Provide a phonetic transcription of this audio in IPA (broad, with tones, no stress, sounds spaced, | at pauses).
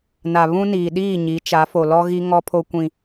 n a˨ β ũ˦ n iː˨ ɗ iː˦˨ ɲ i˨˦ t͡ʃ a˨˦ f o˨ l ɔ˦ ɣ i˦ ŋ ɔ˦ pʰ o˦ kʷ ĩ˦